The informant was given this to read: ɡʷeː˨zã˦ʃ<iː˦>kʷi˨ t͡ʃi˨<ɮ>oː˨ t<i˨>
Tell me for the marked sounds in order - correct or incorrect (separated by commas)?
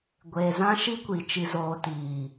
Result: incorrect, incorrect, incorrect